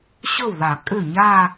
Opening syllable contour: falling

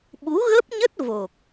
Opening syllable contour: rising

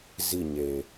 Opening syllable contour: falling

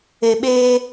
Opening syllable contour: low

